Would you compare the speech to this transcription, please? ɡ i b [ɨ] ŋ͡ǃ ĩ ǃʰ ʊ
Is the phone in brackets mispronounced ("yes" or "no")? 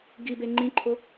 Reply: yes